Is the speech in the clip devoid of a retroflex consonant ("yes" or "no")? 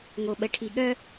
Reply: no